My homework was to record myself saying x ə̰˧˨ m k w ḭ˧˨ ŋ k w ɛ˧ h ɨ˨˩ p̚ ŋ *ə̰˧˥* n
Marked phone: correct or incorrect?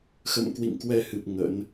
correct